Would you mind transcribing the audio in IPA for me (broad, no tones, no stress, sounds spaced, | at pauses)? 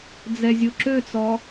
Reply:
d͡z ɛ zʲ o ǁ ø t͡s ɔ